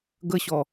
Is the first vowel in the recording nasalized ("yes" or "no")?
no